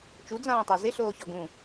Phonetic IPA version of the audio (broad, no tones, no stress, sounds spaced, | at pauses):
t͡ʃ u d͡z ãː tˤ a z ɪ ɬ oː ç ɒ ɡ ũ